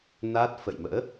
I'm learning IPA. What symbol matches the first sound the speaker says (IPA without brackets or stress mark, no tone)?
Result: n